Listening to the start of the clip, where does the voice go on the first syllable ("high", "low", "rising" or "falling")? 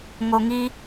low